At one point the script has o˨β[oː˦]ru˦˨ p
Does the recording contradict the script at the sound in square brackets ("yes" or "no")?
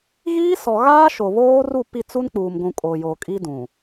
no